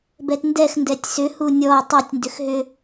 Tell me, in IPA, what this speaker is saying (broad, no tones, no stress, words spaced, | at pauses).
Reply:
bɛtndɛx ndɛtʲsʏ hunʲɔ tˤɵtʲ ndʏxɦʏ